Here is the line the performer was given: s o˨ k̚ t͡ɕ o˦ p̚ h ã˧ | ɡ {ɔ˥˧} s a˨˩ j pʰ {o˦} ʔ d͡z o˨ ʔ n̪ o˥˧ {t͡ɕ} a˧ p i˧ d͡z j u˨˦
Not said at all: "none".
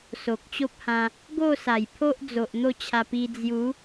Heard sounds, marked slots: o˥˧, o˦, t͡ɕʰ

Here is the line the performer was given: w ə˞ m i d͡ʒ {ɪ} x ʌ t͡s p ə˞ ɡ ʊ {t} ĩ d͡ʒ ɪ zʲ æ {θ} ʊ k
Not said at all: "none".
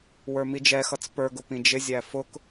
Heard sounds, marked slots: ɛ, p, f

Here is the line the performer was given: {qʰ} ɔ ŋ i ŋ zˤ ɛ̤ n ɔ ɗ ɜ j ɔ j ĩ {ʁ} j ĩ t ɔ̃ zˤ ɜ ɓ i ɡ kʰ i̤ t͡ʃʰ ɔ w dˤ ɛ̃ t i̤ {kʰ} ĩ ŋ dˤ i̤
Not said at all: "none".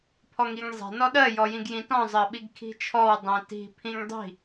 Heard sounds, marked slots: pʰ, ɡ, pʰ

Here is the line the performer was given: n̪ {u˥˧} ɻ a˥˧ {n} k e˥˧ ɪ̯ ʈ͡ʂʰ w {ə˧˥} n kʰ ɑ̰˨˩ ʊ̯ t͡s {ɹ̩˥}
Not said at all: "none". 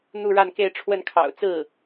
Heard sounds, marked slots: u˥˧, n, ə˥˩, ɹ̩˥˩

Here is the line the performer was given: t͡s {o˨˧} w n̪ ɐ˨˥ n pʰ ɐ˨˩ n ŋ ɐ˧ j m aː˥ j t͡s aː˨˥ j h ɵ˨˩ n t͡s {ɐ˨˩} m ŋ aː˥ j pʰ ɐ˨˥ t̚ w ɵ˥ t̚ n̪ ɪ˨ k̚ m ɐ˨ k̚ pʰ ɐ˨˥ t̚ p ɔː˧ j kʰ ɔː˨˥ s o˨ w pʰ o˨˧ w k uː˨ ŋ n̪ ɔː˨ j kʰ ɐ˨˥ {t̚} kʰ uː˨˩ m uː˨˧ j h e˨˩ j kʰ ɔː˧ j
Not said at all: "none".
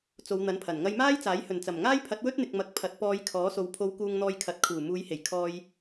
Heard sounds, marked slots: o˨˧, ɐ˨˩, t̚

